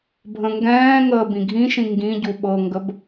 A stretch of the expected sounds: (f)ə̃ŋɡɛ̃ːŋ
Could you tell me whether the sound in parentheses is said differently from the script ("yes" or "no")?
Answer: yes